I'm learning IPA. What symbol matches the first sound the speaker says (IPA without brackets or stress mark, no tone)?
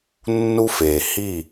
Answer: nː